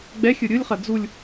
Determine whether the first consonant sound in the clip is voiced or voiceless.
voiced